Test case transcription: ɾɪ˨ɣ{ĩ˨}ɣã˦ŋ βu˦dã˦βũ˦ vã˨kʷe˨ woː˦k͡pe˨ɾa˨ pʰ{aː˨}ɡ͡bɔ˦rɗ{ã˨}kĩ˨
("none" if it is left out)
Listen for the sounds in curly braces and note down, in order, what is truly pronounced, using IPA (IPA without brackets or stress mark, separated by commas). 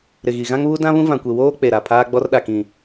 i˨, aː˦, a˨